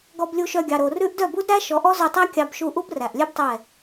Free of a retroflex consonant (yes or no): yes